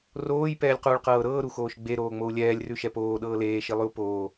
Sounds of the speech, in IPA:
r oː j p ɛː lʲ q uː ɭ q ɤː ɾ ɤː ɾ u x oː ʃ ɡ͡b e ɾ oː ŋ͡m o u̯ lʲ ɛː lʲ r ʉ ʃ ɛ p oː ɗ ɤː l eː ʃ i lˠ ʉ u̯ p oː

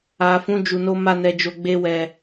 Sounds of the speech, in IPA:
a˨ f ũ˨˦ d͡ʒ u˧ n o˦ m a˦˨ n ɛ˧ d͡ʒ o˧ ɡ͡b e˦ w ɛ˧

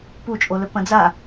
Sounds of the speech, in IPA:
p u t͡ʃʼ o l ɵ p ɐ̃ d͡z a

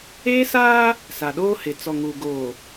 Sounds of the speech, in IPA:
eː˦ s aː˦ | s a˨ ɗ oː˦ h ɪ˨ t͡s ɔ˨ ŋ uː˨ ɡ oː˨

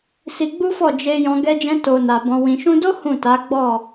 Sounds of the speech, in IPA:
s i˧ ɡ͡b u˦ f ɔ˦˨ d͡ʒ e˧ j ɔ̃˧ ɡ ɛ˧ d͡ʒ ɛ̃˧ t o˨ n a˨ b ɔ̃˨ w ĩ˨ ʃ ũ˧ d o˦ h ũ˦˨ t a˨˦ ɡ͡b ɔ˦˨

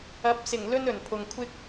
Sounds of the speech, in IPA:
ɐ˨˥ p̚ s ɪ˨˩ ŋ l ɵ˥ n ɵ˨˩ n pʰ ʊ˨ ŋ kʷʰ ɪ˥ k̚

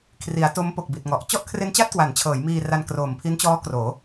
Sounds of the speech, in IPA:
kʰ r i˩˦ a̯ t o˦˥ m p o˨˩ k̚ b i˨˩ t̚ ŋ ɔ˨˩ ʔ t͡ɕ ɔ˥˩ ʔ kʰ r e˦˥ n t͡ɕ a˥˩ t̚ k w a˩˦ n t͡ɕʰ ɤː˩˦ j m iː˧ r a˧ n k r oː˨˩ m pʰ i˦˥ n t͡ɕ ɔː˦˥ k r oː˩˦

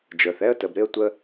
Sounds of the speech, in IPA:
d͡ʒ ə˞˨ θ ɛ˦ ə̯ t ə˨ b ɾ ɪ˦ ə̯ tʷ ə˧

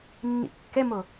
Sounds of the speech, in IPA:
nː ḭ kː ɛ m o

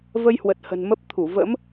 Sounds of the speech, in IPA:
v ə˧ j h w ə˨˩ t̚ h ə̤˨˩ n m ə˦˥ p̚ t̪ʰ u˧˩ v ə̰˧˥ m

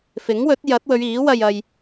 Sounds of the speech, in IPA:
f ɪ˨˥ ŋ w ɵ˨˥ t̚ j ɐ˨˥ t̚ w ɵ˨˧ ɥ iː˨˥ w ɐ˧ j ɐ˨ j

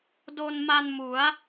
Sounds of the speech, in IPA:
d o˧ n m a˧ n m u˩˦ a̯

